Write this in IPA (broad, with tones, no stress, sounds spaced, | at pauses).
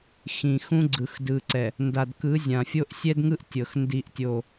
x ĩ˨ x ũ˦ ɡ͡ǀ ɯ˨ x d ɯ˨ ǀ ɛ˨ | n d a˨ d k ɯ˨˦ zʲ ã˨ fʲ o˦ ʔ sʲ ɛ˦ d ŋ ɯ˦ ʔ tʲ ɤ˨ x n d i˦ ʔ tʲ o˦˨